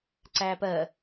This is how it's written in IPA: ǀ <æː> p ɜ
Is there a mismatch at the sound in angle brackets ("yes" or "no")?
no